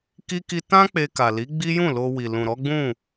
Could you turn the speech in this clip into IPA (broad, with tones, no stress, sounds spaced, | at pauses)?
k i˦ k i˦ t ã˦ k͡p e˧ k a˨ l i˨˦ ɡ͡b i˦ j ũ˦˨ l o˧ w i˨ l ũ˨ ɾ ɔ˨˦ ɡ͡b ũ˦˨